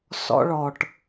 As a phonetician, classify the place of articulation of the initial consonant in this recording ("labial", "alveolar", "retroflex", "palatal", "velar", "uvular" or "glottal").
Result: alveolar